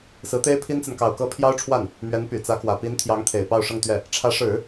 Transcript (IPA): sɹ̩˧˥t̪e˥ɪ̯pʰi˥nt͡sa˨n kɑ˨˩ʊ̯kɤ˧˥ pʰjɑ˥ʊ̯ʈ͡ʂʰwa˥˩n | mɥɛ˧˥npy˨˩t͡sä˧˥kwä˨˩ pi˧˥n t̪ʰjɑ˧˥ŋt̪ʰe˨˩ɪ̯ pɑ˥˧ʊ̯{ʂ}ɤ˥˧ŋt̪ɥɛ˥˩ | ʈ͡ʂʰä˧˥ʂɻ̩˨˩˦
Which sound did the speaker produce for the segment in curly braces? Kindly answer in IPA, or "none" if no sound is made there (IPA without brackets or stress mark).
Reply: ʂ